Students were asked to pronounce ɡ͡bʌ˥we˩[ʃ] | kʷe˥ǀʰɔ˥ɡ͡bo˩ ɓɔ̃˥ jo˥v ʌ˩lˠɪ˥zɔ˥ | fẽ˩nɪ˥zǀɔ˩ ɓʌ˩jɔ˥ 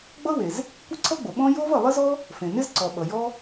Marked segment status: incorrect: z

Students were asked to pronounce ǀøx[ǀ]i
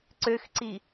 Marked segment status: correct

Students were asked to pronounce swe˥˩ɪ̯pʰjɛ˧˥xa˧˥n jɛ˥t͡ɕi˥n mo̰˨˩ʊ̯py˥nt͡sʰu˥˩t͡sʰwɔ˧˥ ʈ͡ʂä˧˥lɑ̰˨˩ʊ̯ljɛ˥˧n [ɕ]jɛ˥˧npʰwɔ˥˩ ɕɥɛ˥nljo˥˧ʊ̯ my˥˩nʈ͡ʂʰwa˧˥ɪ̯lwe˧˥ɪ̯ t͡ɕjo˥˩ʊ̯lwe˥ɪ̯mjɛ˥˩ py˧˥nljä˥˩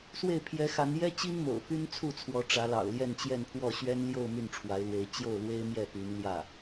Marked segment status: incorrect: t͡ɕ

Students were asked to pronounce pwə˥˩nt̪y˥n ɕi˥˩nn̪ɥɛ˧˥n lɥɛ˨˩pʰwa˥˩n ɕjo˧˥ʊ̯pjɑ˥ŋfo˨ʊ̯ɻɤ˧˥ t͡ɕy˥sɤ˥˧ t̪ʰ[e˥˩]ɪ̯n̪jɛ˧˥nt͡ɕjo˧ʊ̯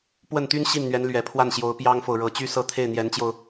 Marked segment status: correct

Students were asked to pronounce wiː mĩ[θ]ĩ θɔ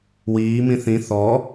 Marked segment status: correct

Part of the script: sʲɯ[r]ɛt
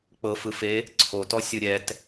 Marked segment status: incorrect: ɾʲ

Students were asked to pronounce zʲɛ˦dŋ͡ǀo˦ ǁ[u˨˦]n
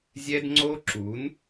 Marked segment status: correct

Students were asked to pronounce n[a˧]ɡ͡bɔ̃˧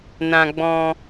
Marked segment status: incorrect: ã˧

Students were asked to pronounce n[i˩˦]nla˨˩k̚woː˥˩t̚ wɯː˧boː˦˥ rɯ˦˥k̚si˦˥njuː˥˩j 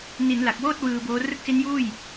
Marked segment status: correct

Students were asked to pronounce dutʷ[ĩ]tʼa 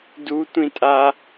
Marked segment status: correct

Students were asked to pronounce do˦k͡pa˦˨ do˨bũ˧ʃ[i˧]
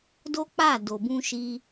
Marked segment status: correct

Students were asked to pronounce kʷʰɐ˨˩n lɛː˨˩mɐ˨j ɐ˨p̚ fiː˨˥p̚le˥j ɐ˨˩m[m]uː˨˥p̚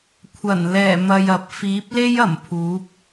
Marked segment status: incorrect: pʰ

